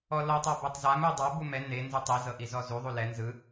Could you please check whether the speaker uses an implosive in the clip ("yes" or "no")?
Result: no